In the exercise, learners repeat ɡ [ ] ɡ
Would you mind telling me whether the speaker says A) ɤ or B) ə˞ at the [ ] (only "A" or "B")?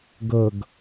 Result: A